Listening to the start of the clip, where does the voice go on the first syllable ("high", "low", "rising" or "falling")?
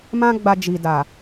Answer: high